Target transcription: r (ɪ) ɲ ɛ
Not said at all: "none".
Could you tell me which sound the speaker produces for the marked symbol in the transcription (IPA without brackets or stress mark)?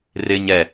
ɪ